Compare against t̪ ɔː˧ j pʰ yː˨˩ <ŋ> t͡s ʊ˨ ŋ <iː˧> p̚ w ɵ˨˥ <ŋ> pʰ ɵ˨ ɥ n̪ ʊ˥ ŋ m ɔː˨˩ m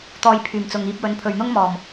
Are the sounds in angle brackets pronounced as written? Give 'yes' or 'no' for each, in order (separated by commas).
no, yes, no